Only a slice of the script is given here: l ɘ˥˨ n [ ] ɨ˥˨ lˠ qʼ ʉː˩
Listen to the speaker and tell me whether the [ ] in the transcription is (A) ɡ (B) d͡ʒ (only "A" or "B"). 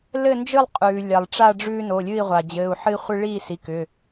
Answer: B